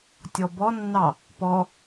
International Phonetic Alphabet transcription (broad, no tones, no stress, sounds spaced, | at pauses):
tʲ ɔ b ɔ nː ɑ | p ɔ